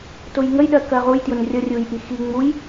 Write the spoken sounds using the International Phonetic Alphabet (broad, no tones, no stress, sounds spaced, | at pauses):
t ʊ j ŋ ə j ɗ ɜ k ɜ ʁ u j t j ʊ n rʲ ʌ rʲ u j ʔ i x i ŋ͡m u j